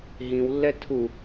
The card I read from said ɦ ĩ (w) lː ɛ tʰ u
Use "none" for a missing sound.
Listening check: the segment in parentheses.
w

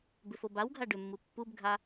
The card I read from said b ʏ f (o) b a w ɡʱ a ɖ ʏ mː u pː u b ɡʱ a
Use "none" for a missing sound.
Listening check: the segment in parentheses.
o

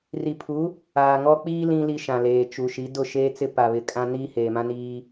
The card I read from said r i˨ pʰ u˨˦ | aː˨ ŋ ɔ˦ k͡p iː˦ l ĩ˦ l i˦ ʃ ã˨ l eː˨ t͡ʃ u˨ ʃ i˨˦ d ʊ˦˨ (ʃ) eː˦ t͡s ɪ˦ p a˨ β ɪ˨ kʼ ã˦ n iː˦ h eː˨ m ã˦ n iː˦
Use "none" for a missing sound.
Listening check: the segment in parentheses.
ʃ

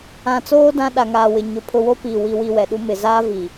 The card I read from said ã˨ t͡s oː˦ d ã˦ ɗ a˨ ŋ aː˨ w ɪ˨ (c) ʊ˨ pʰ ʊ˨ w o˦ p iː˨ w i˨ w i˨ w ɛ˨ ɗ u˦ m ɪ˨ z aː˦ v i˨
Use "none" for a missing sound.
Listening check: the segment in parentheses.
ɲ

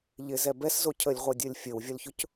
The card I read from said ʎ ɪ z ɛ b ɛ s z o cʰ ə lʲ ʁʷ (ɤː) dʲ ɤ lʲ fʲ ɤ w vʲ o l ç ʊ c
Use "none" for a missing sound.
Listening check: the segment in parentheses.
ɤ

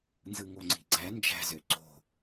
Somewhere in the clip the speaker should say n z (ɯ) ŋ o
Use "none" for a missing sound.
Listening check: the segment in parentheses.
ɯ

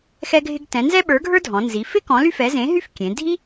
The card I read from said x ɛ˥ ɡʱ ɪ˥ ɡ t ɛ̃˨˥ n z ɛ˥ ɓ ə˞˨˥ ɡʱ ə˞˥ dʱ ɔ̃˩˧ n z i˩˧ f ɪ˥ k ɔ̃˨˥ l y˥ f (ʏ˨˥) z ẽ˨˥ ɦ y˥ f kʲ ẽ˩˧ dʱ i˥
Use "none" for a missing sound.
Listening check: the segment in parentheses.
ɛ˨˥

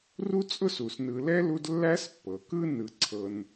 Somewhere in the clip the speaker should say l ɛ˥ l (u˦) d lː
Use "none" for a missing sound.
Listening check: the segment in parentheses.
u˦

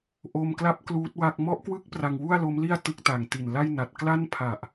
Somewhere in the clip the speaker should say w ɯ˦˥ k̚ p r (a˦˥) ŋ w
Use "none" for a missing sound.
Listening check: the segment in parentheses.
a˧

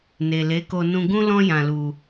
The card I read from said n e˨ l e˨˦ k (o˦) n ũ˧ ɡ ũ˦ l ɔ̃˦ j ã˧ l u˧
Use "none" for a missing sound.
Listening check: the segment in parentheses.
o˧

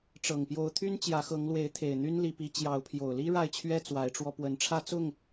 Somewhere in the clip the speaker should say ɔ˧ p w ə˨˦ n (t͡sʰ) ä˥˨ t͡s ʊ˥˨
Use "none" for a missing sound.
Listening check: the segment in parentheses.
ʈ͡ʂʰ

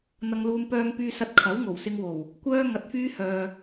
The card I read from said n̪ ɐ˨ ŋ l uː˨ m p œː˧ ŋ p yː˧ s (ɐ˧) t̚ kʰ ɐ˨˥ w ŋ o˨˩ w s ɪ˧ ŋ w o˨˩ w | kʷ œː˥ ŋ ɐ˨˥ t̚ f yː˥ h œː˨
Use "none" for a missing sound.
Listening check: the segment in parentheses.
ɐ˧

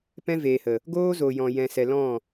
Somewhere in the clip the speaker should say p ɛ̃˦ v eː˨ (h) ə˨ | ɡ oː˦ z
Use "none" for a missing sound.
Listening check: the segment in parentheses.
h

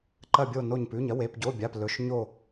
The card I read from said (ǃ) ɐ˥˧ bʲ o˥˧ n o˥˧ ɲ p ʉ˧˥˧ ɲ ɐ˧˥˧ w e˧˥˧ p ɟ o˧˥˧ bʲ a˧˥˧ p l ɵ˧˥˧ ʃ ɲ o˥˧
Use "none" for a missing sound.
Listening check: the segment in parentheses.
ǃ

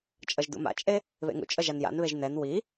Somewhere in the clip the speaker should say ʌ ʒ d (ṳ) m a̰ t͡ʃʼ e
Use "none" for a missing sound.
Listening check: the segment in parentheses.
ṵ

